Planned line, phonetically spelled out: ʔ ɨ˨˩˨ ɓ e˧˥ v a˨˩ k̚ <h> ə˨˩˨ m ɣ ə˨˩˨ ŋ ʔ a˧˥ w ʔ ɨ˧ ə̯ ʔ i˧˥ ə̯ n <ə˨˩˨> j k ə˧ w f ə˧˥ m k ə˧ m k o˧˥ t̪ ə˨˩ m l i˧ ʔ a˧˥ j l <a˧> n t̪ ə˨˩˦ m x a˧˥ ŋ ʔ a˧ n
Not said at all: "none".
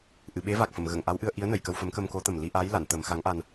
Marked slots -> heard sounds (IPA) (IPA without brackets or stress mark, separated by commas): f, ə˨˩˨, a˨˩˨